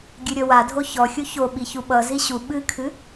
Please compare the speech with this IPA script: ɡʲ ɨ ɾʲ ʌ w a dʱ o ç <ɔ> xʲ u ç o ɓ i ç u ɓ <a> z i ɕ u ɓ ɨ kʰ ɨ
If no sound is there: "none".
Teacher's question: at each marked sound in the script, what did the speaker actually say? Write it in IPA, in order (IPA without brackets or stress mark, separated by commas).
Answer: ɔ, ʌ